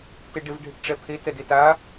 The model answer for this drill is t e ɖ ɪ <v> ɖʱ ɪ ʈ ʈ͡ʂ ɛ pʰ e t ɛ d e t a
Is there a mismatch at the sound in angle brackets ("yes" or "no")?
no